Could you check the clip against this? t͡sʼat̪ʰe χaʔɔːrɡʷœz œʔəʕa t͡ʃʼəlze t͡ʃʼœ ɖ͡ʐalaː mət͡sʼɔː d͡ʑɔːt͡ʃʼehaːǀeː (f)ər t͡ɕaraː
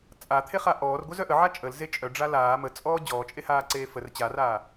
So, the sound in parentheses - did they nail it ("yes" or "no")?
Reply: yes